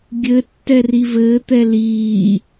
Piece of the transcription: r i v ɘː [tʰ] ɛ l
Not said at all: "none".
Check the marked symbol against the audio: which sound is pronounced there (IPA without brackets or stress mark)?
t̪